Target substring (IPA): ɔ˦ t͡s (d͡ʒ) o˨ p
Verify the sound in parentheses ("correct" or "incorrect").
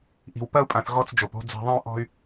correct